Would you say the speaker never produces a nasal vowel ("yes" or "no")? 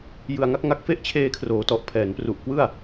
yes